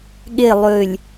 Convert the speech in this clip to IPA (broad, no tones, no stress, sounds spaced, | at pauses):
ɠ e lˠ ø lʲ